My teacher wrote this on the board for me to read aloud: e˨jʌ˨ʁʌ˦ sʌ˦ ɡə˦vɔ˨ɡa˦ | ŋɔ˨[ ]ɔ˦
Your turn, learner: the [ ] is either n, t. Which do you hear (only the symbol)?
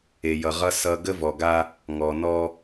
n